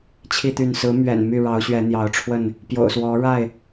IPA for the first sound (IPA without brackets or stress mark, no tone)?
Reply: t͡ɕʰ